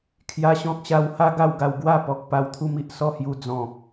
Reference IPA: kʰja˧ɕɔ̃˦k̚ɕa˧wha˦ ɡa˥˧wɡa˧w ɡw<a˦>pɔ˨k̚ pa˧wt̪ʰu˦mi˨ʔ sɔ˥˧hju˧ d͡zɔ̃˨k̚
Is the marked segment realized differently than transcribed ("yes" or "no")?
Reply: yes